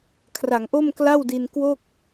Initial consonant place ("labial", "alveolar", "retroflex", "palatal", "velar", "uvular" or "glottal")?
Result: velar